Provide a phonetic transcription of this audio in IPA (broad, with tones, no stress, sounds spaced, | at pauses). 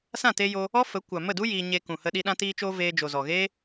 s ã˦˨ t e˧ j o˧ | ɔ˦ f ə˨˦ kʷ a˨ m ə˦˨ d u˦ j iː˧ ɲ e˧ k ũ˨ h ə˧ ɗ i˧ ɗ ã˧ t iː˧ t͡ʃ oː˧ v eː˧ d͡ʒ o˨ z ɔ˨ ɣ eː˦